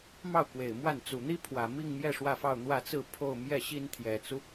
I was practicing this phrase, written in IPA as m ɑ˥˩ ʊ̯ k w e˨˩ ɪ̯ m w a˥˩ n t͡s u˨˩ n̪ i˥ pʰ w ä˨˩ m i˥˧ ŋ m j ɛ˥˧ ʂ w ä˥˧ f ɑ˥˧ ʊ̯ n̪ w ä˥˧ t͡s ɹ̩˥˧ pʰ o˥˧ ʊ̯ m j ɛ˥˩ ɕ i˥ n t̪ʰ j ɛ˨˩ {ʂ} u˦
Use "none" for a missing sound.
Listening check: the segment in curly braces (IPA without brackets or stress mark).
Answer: t͡s